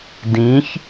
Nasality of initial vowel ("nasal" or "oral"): nasal